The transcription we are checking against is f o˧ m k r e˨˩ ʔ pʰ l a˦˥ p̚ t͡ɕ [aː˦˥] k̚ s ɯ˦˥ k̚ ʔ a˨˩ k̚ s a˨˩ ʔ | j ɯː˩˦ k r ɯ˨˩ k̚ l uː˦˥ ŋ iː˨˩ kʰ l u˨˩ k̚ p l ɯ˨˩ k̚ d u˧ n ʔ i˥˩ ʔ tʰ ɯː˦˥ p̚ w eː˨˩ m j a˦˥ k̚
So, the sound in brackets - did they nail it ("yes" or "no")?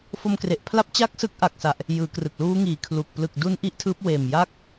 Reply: no